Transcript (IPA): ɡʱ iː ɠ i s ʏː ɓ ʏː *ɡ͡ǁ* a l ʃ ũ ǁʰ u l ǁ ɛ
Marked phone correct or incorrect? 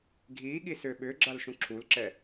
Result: correct